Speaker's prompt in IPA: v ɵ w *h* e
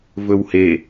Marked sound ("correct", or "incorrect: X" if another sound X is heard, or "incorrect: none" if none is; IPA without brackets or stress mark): correct